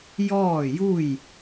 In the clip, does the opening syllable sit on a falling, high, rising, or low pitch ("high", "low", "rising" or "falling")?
falling